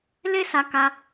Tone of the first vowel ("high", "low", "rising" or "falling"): high